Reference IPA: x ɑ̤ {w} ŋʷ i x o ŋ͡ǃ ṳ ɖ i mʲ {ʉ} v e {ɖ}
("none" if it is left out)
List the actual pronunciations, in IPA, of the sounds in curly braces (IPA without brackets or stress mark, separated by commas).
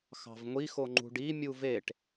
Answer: v, u, ʈ